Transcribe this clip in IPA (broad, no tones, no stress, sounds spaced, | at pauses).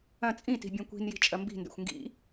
ɐ̃ t͡sʼ ĩ t i̤ bʲ ɔ̃ kʷ i̤ n j i̤ t͡ʃʼ ɐ m b i̤ n d ɛ̰ xʷ ŋ ɡ ḭ